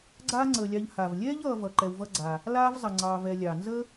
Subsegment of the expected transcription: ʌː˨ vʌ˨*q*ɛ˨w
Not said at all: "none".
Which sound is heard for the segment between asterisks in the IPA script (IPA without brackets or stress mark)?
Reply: ǃ